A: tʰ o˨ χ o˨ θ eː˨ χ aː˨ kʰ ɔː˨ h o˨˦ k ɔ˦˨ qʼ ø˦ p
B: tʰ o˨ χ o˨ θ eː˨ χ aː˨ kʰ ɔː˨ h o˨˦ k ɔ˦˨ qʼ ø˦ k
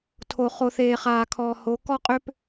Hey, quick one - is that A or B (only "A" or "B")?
A